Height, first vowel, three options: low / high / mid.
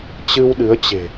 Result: high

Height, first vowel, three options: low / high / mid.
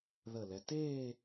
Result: mid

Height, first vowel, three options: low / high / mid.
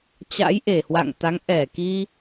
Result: low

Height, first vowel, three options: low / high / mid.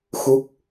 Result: high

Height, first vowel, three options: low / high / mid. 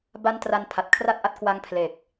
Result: low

